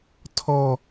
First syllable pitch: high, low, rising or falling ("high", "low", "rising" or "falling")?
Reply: falling